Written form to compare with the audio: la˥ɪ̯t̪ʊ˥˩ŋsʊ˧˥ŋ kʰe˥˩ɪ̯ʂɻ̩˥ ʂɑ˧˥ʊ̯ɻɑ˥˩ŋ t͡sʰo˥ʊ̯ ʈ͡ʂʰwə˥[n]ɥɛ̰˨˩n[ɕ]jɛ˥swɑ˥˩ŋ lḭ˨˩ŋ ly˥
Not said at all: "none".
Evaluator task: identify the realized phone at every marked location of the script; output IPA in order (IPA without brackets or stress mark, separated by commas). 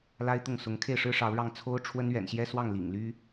n, ɕ